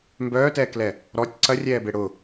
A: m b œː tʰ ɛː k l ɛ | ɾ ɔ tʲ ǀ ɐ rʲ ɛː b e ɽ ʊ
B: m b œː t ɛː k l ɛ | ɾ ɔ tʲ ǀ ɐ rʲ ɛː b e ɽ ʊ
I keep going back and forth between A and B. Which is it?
B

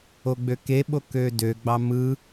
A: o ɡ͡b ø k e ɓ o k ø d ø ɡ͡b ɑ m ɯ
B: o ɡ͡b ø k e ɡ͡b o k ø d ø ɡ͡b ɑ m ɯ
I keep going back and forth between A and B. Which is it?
A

